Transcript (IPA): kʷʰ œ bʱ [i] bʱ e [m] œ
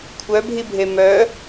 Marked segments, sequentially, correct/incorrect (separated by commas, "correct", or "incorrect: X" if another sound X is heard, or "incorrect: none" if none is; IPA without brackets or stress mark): correct, correct